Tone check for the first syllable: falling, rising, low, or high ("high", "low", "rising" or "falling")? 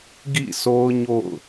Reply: falling